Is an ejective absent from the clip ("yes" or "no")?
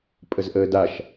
no